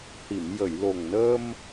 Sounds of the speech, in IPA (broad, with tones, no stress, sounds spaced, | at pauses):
h i˨˩˨ m j ə˨˩˨ j l o˨˩ ŋ n əː˧ m